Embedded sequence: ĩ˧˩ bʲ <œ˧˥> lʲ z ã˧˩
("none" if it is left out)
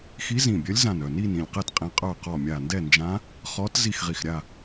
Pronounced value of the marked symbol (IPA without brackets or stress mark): œ˧˥